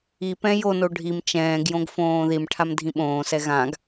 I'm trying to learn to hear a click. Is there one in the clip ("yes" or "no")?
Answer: no